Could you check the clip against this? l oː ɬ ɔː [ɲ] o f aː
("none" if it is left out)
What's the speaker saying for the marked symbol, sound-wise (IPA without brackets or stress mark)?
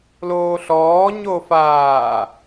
ɲ